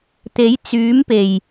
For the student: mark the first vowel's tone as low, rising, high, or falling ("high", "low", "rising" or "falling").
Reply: rising